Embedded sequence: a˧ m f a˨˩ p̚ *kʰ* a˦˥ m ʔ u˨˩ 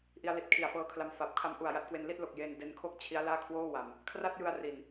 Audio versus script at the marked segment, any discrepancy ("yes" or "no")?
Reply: no